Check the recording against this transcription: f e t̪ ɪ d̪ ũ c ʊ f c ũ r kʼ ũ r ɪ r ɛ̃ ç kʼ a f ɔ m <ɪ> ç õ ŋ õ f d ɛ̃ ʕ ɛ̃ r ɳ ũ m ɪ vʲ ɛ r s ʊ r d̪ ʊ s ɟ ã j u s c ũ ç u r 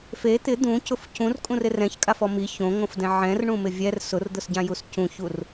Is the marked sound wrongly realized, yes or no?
yes